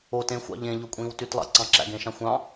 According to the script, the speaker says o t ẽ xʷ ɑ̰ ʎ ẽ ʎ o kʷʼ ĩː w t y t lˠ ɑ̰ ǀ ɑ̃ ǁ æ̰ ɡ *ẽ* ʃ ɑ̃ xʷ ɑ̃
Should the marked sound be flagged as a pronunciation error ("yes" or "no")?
no